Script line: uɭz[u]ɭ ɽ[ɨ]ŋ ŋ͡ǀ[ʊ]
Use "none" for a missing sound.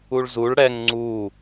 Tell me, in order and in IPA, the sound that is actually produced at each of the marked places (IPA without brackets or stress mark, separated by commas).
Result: u, ɛ, u